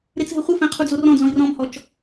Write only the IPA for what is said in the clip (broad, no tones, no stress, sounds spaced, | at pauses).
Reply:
ɾ e t͡s ɦ ɘ χʷ ɨ f ɛ̃ qʰ u d͡z o r ɔ̃ d͡z ɔ̃ i̯ r ɔ̃ m h ɔ t͡ʃ